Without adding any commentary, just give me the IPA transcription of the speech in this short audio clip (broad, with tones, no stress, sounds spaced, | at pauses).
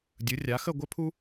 dʲ ɯ˩˧ rʲ a˩˧ x ə˦˨ ɡʷ ɘ˥ pʰ u˥